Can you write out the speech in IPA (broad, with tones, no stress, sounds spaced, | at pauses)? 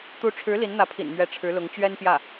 t̪ u˧˥ ʈ͡ʂʰ ɻ̩˧˥ l i˧˥ n n̪ ä˧˥ pʰ ḭ˨˩ n m ɥ ɛ˧˥ ʈ͡ʂʰ ɻ̩˧˥ l ʊ˧˥ ŋ t͡ɕ ɥ ɛ˥ n p j ä˥˩